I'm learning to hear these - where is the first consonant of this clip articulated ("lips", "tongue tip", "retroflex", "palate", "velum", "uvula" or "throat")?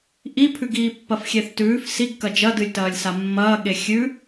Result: throat